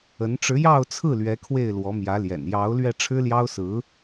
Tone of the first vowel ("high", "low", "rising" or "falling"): rising